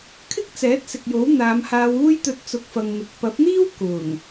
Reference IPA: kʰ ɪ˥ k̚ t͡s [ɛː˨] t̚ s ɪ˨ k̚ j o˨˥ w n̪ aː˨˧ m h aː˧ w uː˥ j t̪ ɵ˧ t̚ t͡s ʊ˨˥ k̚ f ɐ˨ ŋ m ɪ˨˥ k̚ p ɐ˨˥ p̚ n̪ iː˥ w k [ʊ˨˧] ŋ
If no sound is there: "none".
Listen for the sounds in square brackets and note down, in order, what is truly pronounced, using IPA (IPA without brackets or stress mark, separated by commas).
ɛː˨˥, ʊ˨˩